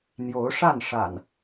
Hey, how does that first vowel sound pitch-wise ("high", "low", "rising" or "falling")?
rising